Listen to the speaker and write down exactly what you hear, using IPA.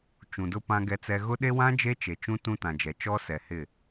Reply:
t͡ʃ ũ˨ d ʊ˦ p ã˦ ɡ ɛ˦ t͡s ɛ˦ ɣ ʊ˦ ɗ e˦ w ã˦ d͡ʒ e˦ t͡ʃ e˨ t͡ʃ ũ˦ t ũ˦ t ã˨ d͡ʒ ɛ˨ t͡ʃ ɔ˦ s ɛ˨ h ɪ˦˨

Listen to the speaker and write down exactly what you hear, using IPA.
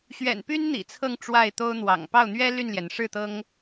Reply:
ɕ ɥ ɛ̰˨˩ n p y˥ n n̪ ḭ˨˩ t͡sʰ ɤ˥˧ ŋ ʈ͡ʂ w a˥˩ ɪ̯ t̪ o˥ ʊ̯ n̪ w ɑ̰˨˩ ŋ p ɑ˥˩ ʊ̯ n̪ ɥ ɛ˥ l y˥˩ n l j ɛ˩ n ʂ ɻ̩˥˩ t̪ ɤ˥ ŋ

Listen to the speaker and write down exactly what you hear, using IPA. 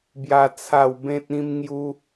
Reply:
b j a˦ t͡sʰ a˥˧ w b ẽ˦ t̚ ĩ˦ m ŋ j u˦

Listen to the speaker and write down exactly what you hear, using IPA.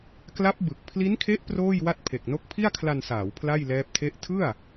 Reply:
k l a˦˥ p̚ b ɯ˨˩ k̚ pʰ l i˦˥ n kʰ e˦˥ ʔ p r oː˥˩ j w a˥˩ t̚ pʰ e˨˩ k̚ n o˦˥ k̚ pʰ i˥˩ a̯ kʰ l a˧ n s aː˩˦ w pʰ l a˥˩ j l ɛː˦˥ p̚ tʰ e˥˩ ʔ tʰ ɯ˥˩ a̯

